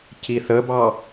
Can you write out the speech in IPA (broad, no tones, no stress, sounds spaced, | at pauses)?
c i θ ə b ɑ